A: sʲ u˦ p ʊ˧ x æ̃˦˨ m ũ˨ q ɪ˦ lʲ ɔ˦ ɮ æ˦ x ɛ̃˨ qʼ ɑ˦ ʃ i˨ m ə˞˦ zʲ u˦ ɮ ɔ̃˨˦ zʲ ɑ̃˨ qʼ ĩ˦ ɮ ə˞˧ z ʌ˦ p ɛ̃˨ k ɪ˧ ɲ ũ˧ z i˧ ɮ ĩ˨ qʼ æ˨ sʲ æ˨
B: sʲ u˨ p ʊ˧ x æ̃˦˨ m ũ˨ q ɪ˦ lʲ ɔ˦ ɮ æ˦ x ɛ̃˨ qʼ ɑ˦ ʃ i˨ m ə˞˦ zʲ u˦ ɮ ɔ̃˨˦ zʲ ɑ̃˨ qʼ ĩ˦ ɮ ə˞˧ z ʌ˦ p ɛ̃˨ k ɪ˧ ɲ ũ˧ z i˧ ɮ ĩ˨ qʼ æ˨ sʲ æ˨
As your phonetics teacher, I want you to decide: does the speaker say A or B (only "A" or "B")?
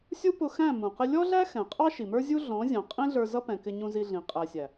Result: A